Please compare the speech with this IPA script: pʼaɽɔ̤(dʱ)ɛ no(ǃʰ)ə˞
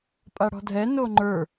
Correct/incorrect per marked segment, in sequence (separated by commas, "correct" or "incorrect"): correct, incorrect